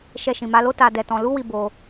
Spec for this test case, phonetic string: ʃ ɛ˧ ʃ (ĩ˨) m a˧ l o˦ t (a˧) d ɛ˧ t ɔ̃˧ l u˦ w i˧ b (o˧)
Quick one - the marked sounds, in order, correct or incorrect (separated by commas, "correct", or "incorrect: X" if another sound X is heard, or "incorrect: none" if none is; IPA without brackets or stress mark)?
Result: correct, correct, correct